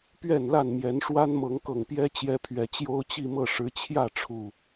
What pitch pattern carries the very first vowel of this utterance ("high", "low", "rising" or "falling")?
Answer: falling